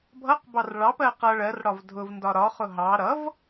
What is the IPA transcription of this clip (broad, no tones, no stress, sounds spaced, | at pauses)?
bʱ ʌ q b ɑ r ɭ ɑ p ɜ q ʌ ɭ ɜ r ɽ ɒ v dʱ ʊ v n d ɒ ɾ ɒ χ ʊ ɦ ɑ ɾ ʌ v